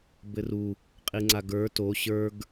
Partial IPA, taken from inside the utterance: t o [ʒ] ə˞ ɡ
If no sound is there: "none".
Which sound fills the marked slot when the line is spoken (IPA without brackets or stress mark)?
ɕ